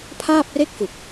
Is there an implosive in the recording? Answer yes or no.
no